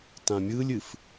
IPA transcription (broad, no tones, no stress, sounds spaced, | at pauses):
t ã mʲ ɯ lʲ ɨ f